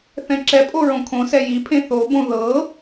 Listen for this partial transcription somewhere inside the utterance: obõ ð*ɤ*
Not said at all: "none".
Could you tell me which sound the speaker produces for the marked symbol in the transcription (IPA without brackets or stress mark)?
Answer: ɤ